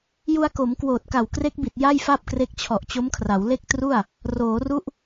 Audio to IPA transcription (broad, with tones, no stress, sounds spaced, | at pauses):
j u˧ a̯ k o˩˦ m k w oː˨˩ t̚ k a˨˩ w k r e˦˥ k̚ b i˨˩ t̚ j a˥˩ j f a˥˩ p̚ k r e˦˥ k̚ t͡ɕʰ ɔ˨˩ ʔ t͡ɕ o˦˥ m kʰ r a˩˦ w l e˥˩ k̚ t r u˥˩ a̯ | r oː˩˦ r u˦˥ ʔ